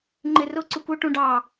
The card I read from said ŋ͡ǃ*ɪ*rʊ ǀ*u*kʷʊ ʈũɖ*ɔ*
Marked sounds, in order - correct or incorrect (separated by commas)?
correct, correct, incorrect